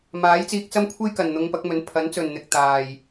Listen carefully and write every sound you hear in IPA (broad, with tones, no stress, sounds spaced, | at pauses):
m aː˨˥ j t͡s iː˧ k̚ t͡s ɐ˥ m kʷʰ e˥ j k ɐ˨ n n̪ ʊ˧ ŋ p ɐ˨˥ k̚ m ɵ˨˥ n pʰ ɐ˨˥ n t͡s ɵ˨ n n̪ ɪ˨ k̚ t̪ aː˨ j